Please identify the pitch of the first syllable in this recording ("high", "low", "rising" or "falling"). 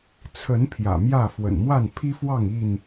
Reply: rising